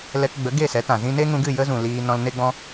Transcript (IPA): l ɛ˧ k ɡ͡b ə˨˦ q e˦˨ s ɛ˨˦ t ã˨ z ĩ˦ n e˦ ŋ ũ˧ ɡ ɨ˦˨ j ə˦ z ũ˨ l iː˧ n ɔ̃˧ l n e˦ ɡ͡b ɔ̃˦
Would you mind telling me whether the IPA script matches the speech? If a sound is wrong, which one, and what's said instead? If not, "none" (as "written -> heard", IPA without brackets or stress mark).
q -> ɡ